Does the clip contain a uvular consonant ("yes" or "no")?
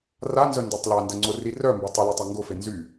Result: no